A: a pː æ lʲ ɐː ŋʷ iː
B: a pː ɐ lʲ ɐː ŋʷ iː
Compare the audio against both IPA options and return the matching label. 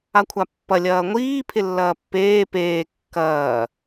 B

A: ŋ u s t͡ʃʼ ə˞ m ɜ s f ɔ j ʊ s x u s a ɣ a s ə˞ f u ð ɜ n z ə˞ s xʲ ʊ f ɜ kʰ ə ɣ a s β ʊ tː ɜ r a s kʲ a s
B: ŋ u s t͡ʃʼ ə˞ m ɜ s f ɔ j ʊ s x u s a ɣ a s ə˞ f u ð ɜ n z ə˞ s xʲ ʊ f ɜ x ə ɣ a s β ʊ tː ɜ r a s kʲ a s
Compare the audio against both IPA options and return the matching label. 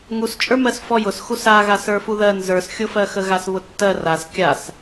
B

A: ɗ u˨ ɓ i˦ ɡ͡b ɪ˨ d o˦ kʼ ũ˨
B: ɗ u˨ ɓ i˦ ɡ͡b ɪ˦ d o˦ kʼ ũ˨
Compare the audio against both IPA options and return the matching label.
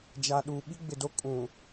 A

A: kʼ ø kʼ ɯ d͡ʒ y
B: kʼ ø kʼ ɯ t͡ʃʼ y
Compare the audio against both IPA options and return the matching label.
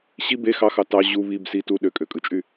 B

